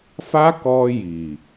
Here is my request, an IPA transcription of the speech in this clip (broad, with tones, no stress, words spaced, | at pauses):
fa˦ kɔ˧ji˨